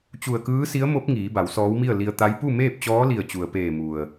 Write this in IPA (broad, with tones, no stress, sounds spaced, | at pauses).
t͡ɕ u˧˩ ə̯ k ɯː˧˥ s i˧˥ ə̯ m o˧˥ p̚ ŋ iː˩˧ b a˩˧ w s ɔː˧˥ w m i˥˨ ə̯ l i˧ ə̯ t̪ a˧˥ j p u˥˨ m eː˥˨ p̚ t͡ɕ ɔː˧˥ l i˧˩ ə̯ t͡ɕ u˩ ə̯ p eː˧˩ m u˩ ə̯